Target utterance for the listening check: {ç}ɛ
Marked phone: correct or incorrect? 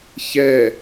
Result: correct